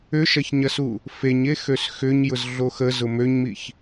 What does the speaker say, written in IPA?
ʏ ʃ ɐ ç ɲ ɐ s u | f e ɲ e x ø s x ʏ ɲ j ʊ z ɮ o x ə z ʊ m ø ɲ m i ç

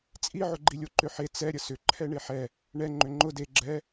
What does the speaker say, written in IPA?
t͡sʼ i ʕ ʊ ɡ͡ǃ i lʲ o ǃ ʏ ħ e t͡s ɛ ɾʲ ə s ʏ ǃʰ ɛ ɳ e ħ ɛ | ɳ ɛ ŋ͡ǃ ʏ ŋ͡ǃ ʊ d e ɡ͡ǁ ɛ

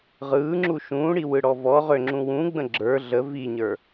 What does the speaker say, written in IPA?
ʁ ɯː ŋ͡ǁ u ʃ ũː ɽ i w ɯ ɽ ɔ v ɔ ʁ ø ŋ͡ǁ ũ w ũ ɡ͡b ə̃ ɡ͡ǁ ə˞ ɮ ə v i ɲ ə˞

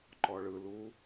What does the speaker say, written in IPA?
ǃ ɔ ɭ ɯ l u

